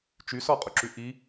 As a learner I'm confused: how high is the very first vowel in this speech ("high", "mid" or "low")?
high